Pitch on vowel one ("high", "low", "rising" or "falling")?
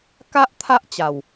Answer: high